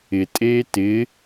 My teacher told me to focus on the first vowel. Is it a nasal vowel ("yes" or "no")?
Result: no